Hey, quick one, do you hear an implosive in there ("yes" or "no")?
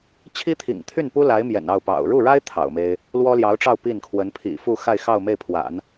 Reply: no